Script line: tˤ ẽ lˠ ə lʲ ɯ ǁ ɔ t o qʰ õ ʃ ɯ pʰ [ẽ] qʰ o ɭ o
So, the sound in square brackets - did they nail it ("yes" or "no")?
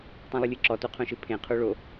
yes